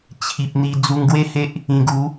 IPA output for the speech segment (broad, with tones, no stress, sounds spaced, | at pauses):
t͡ɕʰ i˨ p̚ n̪ i˧ d͡z u˧ ŋ ɡ w e˥˧ h e˦ ʔ | ĩ˧ ɡ u˨˦